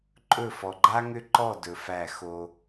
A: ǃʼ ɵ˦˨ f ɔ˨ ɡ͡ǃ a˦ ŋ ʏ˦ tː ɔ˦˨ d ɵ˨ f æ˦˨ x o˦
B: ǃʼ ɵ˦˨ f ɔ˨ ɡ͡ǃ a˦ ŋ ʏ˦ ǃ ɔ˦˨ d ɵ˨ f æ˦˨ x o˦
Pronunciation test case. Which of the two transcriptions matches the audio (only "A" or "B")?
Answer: B